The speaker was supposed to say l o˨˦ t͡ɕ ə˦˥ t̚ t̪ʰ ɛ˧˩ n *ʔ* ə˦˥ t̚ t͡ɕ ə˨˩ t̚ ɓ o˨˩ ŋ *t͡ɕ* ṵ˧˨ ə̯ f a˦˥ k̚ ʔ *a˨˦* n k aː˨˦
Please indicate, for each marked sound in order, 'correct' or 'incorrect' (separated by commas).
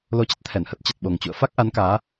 incorrect, correct, correct